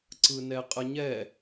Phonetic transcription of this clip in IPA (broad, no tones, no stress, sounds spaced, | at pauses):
ǀ ɯ n ɛ qʼ ə ɲ ɛ